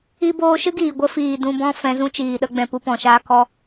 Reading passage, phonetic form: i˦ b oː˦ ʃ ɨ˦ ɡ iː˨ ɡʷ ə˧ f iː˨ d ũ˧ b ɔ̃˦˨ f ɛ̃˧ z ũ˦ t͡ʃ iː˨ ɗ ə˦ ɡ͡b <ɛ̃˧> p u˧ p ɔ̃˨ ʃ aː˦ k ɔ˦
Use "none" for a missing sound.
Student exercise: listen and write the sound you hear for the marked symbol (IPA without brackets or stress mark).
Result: ɛ̃˧